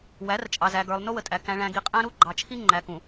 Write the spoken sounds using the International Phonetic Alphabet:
w æ˨˦ r t͡ʃʼ ɑ˨ z æ˨ ɡ ə˞˨ lˠ n ʊ˦ w ə˨ tʼ æ˨ k æ̃˨ ɭ æ̃˨ ɡ i˨ qʼ æ̃˦ ɾ u˦ ɡ͡ǃ ɑ˨ t͡ʃʰ i˦ ŋ͡ǃ æ˨ k ũ˨

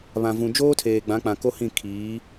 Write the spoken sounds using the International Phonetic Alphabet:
β ã˨ v ũ˨ d͡ʒ oː˦ tʰ eː˨ ɡ͡b ã˨˦ k͡p ã˨ k o˦ h ĩ˦˨ kʰ iː˨˦

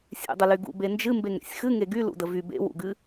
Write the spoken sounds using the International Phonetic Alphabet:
sʲ ḛ dˤ ə l y ɡ ṵ b e n d͡ʒ ɨ m b e ŋ ɾ ḛ sʲ x ɨ ŋ e ɡ y l ṵ d ə v y b ḛ w ṵ ɡ ɨ

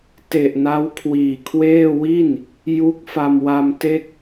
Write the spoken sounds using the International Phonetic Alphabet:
t e˨˩ ʔ n a˦˥ w kʰ w iː˨˩ kʰ w eː˥˩ w i˥˩ n | j u˦˥ k̚ f a˧ m w a˧ m t e˥˩ k̚

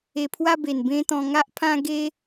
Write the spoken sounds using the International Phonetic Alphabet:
e˧ pʰ w a˦ b e˨˩ n b ẽ˦ t̪ ɔ̃˧ ŋ a˦ ʔ pʰ ã˦ ɡ e˦

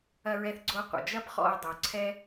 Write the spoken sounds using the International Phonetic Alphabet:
ɐ˧ ɹ ɛ˧ θ ɡ͡ǀ o˧ qʷ ə̰˩ d͡ʒ ɐ˥ p χ ɔ̰˧ ə̯ dˤ ə˩ ʊ̯ ǀʰ ɛ˥

